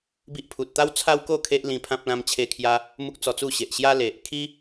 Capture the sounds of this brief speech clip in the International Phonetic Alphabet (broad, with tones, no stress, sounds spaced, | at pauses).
b i˦ ʔ pʰ u˨ t̚ t̪ a˦ w t͡sʰ a˦ w k o˥˧ kʰ e˦ ʔ l ĩ˧ pʰ ã˦ p̚ l ã˧ m t͡ɕʰ e˧ kʰ j a˧ | m u˦ k̚ t͡s ɔ˧ t͡s u˥˧ ɕ e˨ ʔ ɕ j a˦ l e˨ ʔ kʰ i˦